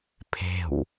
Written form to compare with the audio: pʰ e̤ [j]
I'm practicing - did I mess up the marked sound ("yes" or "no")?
yes